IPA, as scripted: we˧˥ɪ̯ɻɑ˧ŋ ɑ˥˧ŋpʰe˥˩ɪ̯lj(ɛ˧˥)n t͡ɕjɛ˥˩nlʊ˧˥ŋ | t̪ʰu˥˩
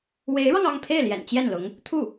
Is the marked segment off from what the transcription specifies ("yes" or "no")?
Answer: yes